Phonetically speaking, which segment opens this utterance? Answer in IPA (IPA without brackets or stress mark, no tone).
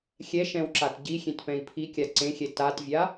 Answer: xʲ